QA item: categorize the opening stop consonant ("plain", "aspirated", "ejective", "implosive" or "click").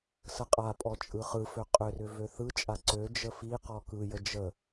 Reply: ejective